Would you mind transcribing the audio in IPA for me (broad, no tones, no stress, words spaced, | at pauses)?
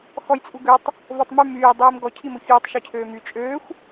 xɔjt͡sʼuɡøtˤ | votˤmy myː dˤiːmɡɔ cʰimoçyːtˤ ʃøcʰøːmy t͡ʃʼøːxʷ